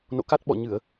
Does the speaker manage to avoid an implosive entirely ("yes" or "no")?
no